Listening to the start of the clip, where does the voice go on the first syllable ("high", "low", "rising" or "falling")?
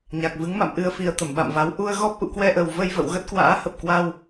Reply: low